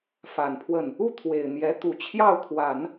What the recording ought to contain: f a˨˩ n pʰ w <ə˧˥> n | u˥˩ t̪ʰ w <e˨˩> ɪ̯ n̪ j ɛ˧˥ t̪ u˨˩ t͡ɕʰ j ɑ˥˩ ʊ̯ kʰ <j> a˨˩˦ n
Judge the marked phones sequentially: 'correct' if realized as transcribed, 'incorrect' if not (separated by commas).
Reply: incorrect, correct, incorrect